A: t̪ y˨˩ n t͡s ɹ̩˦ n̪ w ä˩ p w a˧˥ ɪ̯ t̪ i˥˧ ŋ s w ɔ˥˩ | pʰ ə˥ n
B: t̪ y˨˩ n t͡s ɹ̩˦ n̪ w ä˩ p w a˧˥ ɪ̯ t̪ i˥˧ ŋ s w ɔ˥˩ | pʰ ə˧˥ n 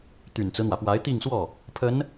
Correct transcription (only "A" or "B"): B